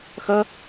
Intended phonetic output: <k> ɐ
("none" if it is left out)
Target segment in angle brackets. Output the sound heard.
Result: x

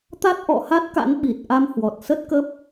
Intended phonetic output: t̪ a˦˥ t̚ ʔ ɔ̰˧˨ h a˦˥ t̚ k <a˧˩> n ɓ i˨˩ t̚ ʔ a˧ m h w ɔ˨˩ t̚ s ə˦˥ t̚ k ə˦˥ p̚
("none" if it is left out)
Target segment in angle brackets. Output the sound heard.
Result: a̰˧˥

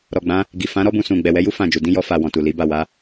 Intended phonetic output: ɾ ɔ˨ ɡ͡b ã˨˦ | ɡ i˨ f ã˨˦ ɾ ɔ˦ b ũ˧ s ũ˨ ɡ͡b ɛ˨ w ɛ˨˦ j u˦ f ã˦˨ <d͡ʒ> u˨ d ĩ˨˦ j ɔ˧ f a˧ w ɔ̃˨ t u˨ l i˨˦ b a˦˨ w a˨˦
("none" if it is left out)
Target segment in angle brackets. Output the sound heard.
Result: d͡ʒ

